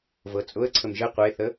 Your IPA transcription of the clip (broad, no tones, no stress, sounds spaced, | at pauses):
v ɤ t͡sʼ ʊ ə̯ ǀʰ ə m ʒ ə qʷ e θ ə